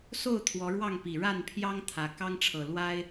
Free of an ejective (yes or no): yes